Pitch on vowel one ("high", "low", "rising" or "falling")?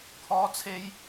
high